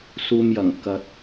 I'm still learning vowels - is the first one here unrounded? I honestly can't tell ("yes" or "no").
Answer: no